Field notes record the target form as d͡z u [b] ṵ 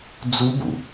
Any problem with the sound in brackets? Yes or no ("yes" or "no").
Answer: no